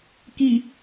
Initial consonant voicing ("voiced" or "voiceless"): voiceless